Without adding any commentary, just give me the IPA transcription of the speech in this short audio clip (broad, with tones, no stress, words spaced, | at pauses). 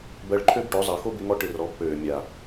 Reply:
bɜ˧ɭǃʰø˦bʈo˨˦ zˤɜ˨ xo˦bɪ˧ ŋɔ˦ʈɪ˧rɔ˨˦bpøː˨ mʲa˨